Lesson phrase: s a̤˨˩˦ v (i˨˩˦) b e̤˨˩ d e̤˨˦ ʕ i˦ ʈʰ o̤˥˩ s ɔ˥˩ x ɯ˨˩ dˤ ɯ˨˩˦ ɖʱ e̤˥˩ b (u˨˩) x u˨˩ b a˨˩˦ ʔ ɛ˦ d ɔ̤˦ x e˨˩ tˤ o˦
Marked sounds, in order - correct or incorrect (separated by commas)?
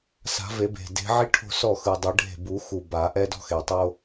incorrect, incorrect